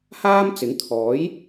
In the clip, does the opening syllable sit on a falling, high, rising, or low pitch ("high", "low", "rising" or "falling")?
high